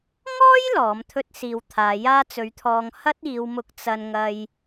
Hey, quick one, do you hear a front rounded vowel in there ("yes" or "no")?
no